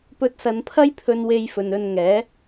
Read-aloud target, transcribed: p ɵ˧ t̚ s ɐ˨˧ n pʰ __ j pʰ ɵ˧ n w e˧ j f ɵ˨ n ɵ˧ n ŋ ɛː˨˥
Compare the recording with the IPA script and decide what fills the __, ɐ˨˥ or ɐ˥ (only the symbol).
ɐ˥